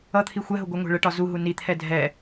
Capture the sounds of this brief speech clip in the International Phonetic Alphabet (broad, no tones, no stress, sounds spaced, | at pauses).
ʌ t̪ʰ i xʷ ɛ ɦ ʊ ɡʷ ʌ ŋʷ ɛ̤ ɭ ə ʈ ɒ z u ɦ u n i t̪ʰ ɛ dʱ ɛ